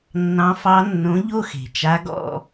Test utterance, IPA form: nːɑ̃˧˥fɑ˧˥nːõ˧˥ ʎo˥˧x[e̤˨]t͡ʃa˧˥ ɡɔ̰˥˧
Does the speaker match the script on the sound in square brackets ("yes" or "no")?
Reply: yes